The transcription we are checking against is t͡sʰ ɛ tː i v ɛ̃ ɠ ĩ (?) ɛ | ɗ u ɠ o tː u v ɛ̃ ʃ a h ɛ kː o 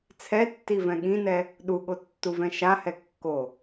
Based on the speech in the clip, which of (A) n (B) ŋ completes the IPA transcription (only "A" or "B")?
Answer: A